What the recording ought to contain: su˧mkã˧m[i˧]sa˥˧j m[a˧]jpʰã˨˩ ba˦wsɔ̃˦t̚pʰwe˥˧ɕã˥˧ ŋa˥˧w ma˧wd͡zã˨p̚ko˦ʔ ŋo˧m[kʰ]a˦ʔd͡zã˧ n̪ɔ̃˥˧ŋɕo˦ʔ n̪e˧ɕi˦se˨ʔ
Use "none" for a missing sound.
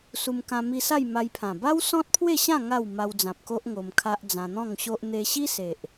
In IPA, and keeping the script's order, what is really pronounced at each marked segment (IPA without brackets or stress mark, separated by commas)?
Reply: i˧, a˧, kʰ